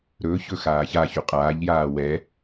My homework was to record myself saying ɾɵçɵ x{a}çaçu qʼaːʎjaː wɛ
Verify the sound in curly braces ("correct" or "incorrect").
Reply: incorrect